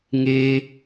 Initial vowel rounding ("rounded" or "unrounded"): unrounded